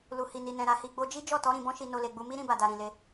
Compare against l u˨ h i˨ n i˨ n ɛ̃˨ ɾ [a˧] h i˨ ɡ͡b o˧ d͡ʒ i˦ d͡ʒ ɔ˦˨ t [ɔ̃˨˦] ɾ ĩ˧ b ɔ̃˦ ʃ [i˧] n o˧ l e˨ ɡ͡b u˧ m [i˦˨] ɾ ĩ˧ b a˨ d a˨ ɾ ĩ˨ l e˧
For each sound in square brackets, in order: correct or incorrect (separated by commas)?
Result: incorrect, incorrect, correct, incorrect